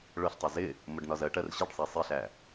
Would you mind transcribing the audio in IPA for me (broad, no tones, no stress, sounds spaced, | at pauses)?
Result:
ɭ ʊ ɬ tˤ ʊ z ɪ | m ʊ ɖ n ɒ z ɜ ʈ ɜ r ɕ i ɖ sˤ æ sˤ i ɬ æ